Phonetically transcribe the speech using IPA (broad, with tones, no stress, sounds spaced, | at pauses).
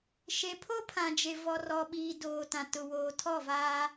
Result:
ʃ e˨ pʰ o˦ pʰ ã˨ d͡ʒ e˨ v ɔ˨ r ɔ˨ ɓ iː˨ d oː˨ t ã˨ t ʊ˨ w oː˨ tʰ ɔ˦˨ v aː˦